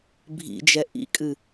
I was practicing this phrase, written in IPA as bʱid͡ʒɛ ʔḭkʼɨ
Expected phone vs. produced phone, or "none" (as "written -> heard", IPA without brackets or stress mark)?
i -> ḭ